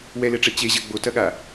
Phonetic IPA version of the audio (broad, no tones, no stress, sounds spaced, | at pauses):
w ɛ l ɛ ʈ͡ʂ ɛ t͡ɕ e ʑ ɐ ɡ͡b o t ɐ ɠ a